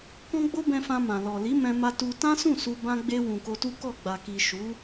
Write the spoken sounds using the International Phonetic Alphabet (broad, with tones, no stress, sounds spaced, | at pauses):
k ɔ̃˦ ɡ͡b o˦ b ɛ̃˧ f ã˧ m ã˨ l ɔ˨ l i˨˦ m ɛ̃˧ m a˧ t u˧ t ã˦ s ũ˦˨ s u˧ b ã˦ ɡ͡b e˧ w ũ˨ k o˧ t u˦ k ɔ˦˨ ɡ͡b a˨ k i˨ ʃ u˨˦